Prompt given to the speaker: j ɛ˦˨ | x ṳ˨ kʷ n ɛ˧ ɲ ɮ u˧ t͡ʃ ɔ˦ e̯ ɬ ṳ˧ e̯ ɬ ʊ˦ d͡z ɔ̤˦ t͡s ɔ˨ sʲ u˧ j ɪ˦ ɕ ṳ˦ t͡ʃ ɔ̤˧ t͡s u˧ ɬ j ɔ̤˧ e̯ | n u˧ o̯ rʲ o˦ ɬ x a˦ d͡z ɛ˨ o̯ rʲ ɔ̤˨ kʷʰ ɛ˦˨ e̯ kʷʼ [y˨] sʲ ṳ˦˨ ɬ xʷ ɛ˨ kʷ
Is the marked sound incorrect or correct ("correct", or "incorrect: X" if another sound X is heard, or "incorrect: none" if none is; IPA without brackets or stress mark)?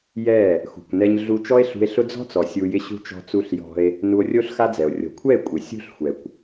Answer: incorrect: ɪ˨